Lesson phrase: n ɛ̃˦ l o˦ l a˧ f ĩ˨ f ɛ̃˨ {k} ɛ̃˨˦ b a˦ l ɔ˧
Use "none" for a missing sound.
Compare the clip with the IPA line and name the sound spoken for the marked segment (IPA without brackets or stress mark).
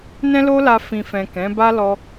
k